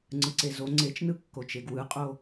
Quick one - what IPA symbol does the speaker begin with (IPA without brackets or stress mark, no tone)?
ŋ͡ǀ